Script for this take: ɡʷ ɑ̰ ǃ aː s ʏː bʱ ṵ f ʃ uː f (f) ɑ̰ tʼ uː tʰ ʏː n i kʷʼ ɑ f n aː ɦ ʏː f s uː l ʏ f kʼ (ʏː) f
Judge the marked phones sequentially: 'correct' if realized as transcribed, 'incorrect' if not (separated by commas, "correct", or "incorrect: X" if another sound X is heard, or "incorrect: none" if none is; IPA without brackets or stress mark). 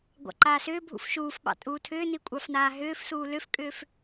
incorrect: ɓ, correct